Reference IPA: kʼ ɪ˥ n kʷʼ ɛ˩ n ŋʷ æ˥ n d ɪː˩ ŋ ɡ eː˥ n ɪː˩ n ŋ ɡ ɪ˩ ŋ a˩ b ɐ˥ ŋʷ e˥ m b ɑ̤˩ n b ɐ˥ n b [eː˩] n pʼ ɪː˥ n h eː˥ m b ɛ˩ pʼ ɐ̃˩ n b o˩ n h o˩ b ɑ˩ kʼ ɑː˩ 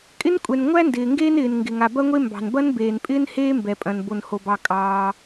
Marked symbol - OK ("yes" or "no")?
yes